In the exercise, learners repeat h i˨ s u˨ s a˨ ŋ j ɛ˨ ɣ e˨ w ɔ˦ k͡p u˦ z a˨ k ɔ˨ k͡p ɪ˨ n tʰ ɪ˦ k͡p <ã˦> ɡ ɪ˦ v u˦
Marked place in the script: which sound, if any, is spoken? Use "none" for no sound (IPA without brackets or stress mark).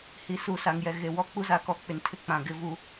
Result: ã˨